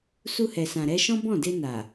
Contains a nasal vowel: yes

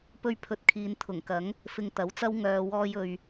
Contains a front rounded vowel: yes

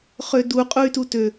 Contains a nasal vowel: no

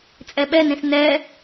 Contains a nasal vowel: yes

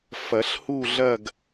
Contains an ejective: no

